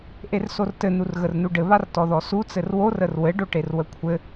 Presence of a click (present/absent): absent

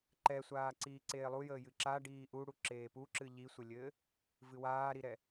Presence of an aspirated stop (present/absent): absent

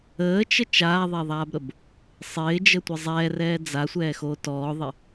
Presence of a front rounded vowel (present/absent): absent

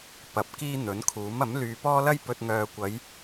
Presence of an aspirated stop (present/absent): present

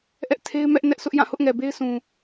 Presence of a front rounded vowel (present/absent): absent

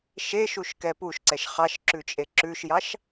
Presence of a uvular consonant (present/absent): present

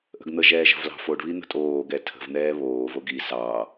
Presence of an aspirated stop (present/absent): present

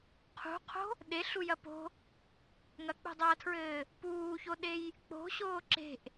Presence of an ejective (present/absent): absent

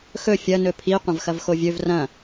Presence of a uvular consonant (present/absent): present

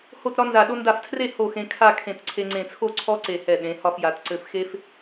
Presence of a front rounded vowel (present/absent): absent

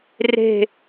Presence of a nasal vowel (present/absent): absent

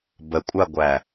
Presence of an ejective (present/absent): present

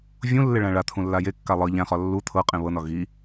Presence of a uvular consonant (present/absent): present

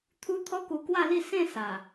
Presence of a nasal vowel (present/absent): present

